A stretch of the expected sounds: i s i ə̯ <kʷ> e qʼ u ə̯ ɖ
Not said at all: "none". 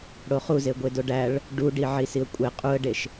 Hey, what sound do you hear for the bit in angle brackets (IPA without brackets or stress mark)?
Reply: kʷʼ